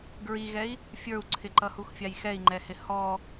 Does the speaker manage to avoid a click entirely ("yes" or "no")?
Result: no